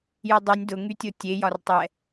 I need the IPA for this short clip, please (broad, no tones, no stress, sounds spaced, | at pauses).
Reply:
j u dˤ y nʲ d ʊ ŋ y tʲ o tʲ e j ɒ r tˤ ɛ